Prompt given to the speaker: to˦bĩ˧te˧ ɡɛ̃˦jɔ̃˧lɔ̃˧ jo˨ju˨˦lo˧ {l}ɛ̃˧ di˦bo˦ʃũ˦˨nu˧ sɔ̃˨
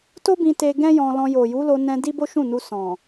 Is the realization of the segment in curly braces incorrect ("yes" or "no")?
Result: yes